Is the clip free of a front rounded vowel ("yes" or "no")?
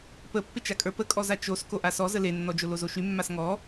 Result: no